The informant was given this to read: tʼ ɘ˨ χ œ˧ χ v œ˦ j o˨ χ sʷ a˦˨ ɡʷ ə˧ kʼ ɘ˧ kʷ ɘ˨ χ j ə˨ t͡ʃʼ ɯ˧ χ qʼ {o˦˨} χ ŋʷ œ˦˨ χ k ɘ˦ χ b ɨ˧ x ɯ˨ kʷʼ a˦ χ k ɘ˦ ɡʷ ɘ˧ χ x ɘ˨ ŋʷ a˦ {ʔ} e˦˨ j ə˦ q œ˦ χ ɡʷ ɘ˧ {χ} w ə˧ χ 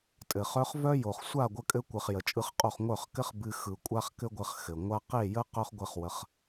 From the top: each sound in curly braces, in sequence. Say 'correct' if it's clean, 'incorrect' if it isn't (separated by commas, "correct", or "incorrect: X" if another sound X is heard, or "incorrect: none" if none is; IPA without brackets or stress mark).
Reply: correct, incorrect: q, correct